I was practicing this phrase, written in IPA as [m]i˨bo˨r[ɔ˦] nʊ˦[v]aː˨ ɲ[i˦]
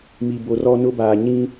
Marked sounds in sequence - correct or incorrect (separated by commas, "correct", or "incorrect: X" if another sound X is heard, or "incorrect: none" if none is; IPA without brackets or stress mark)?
correct, correct, incorrect: b, incorrect: ĩ˦